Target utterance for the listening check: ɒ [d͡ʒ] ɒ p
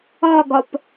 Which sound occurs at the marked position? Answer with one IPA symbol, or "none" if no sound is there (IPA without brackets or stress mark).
ɡ